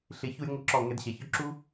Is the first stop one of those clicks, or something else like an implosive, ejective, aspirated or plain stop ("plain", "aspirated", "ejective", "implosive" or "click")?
click